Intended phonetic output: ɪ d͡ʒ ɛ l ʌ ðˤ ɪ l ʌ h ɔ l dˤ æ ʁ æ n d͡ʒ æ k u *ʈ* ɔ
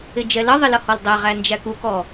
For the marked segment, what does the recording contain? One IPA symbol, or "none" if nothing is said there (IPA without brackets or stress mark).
k